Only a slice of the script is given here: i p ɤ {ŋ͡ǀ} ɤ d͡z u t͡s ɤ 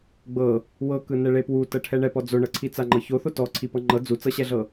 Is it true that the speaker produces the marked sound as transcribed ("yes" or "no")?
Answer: no